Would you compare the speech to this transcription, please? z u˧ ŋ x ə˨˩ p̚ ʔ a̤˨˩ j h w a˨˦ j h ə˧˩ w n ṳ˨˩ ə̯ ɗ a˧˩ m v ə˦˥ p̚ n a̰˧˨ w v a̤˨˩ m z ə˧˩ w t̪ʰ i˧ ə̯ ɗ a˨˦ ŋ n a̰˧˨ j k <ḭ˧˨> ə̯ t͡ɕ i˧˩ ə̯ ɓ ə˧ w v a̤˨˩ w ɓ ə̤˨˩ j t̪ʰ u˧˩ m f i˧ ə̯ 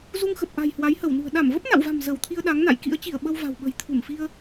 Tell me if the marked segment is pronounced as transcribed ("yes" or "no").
no